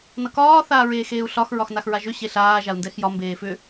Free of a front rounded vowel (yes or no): no